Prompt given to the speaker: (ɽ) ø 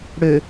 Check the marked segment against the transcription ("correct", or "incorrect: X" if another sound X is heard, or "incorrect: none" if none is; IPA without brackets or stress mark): correct